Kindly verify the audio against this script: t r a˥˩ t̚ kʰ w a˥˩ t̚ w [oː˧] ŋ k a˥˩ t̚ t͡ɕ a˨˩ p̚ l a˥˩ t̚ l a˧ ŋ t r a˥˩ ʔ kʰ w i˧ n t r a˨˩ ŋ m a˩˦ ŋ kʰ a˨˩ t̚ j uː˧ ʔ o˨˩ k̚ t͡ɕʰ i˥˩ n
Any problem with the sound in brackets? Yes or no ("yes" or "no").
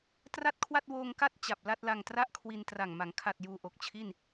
no